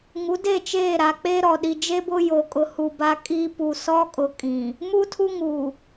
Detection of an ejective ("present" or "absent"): present